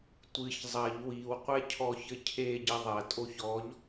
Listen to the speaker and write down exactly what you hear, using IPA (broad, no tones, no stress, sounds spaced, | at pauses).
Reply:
tʷ ɨ ç zˤ ɐ ʎ w i w qʷ ɛ cʰ ɔ ç ɘ cʰ e ɟ ɘ ðˤ ɐ tʼ o ç ɔ ʎ